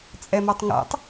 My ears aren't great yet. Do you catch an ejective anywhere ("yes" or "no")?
yes